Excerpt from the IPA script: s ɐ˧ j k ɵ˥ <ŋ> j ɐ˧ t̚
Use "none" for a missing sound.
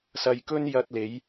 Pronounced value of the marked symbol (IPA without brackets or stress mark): n